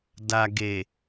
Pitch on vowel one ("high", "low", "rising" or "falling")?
low